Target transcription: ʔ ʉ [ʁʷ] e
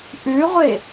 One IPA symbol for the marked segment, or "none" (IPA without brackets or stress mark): ʁʷ